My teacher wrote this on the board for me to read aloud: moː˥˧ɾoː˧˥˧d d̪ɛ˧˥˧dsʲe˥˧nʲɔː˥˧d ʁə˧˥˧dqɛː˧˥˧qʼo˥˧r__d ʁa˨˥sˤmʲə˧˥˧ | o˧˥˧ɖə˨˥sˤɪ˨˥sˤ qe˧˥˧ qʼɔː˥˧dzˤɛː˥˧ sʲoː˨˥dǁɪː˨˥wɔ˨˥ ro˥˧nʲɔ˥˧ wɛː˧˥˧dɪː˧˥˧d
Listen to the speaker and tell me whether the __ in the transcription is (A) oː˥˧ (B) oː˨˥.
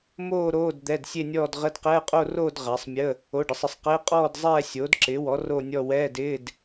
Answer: A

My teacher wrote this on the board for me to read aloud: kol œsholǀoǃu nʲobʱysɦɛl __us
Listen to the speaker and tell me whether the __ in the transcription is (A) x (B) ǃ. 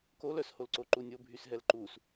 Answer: B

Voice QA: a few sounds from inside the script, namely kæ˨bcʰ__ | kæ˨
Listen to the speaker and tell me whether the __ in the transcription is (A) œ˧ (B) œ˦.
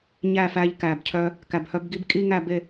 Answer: A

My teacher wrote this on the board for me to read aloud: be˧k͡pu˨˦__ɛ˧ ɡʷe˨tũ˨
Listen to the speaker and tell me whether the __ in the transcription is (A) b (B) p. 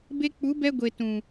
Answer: A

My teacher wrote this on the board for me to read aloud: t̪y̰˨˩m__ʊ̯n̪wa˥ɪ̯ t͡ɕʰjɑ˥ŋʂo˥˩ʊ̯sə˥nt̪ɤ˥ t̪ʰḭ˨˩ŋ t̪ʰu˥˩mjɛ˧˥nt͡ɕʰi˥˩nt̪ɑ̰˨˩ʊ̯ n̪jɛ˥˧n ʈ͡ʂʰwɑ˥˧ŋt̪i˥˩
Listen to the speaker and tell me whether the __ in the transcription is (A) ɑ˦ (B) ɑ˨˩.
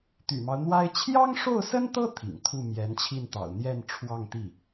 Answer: A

